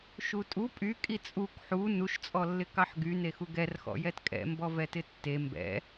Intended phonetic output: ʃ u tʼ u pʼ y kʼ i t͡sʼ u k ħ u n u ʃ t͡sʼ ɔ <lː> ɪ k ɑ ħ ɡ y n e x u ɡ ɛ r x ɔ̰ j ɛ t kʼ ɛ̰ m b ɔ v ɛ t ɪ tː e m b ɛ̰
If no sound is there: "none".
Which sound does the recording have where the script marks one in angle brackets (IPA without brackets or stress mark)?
lː